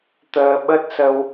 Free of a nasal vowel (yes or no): yes